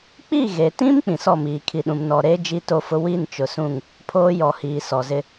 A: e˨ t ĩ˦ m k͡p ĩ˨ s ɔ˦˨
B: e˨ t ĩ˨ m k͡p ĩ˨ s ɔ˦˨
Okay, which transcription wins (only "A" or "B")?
A